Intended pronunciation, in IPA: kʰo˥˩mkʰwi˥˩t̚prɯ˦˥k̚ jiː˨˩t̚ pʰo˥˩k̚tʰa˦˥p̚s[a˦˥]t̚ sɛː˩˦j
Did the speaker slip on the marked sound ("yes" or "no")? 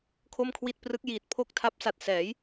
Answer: yes